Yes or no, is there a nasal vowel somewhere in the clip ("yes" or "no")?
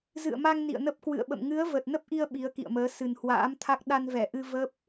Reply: no